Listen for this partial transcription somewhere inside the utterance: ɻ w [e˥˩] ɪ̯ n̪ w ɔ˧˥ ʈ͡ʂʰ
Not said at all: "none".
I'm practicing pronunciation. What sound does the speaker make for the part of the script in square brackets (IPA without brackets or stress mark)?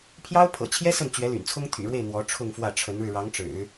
e˥˩